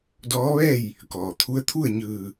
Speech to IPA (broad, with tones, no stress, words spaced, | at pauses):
dɔː˧˥ʋɛː˥˨j | kɔː˩t̪ʰu˧˥ə̯ t̪ʰu˥˨ə̯ɲɯː˧˩